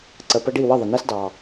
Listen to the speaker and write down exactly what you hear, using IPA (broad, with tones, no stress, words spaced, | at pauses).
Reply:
ǀə˨pə˧ɖi˦˨ wə˦˨ðˤɪ˨næ˦s dɑ˨